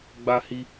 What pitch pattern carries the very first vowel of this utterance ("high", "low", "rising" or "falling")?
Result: high